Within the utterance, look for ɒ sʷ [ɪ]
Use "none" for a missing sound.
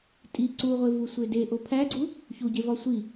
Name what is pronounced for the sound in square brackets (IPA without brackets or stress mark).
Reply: i